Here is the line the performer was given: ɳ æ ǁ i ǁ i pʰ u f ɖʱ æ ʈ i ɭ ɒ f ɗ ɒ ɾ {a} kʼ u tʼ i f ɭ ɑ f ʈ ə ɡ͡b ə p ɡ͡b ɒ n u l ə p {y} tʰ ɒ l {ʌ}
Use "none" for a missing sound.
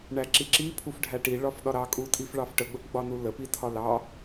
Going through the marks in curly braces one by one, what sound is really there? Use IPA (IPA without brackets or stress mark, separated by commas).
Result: ɑ, i, ɑ